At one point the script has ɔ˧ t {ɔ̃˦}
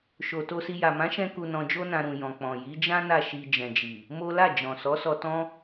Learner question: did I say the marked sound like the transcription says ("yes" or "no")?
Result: yes